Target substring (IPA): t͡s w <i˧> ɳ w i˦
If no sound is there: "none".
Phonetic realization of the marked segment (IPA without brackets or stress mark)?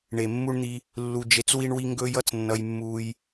i˦